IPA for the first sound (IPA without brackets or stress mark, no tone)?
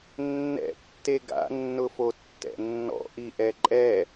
nː